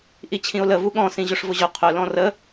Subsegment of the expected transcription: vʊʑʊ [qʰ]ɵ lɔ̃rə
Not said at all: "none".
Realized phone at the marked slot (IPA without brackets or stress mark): qʰ